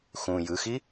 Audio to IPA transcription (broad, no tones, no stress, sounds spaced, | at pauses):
x ũ j ɯ x i